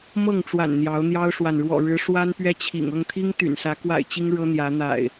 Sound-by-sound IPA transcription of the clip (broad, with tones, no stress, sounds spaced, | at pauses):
m ɤ˥˨ ŋ ʈ͡ʂ w a̰˨˩ n n̪ j ɑ˨˦ ʊ̯ n̪ j ɑ˦ ʊ̯ ʂ w a˨ n ɻ w ɔ̰˨˩ ɻ ɻ̩˨˦ ʂ w a˦ n p ɥ ɛ˦ t͡ɕʰ ḭ˨˩ ŋ ɤ˥˨ ŋ t̪ʰ i˦ ŋ t̪ y̰˨˩ n s ä˨˦ k w a̰˨˩ ɪ̯ t͡ɕ i˦ ŋ ɻ ɤ˦ n̪ j ä˨˦ n̪ a̰˨˩ ɪ̯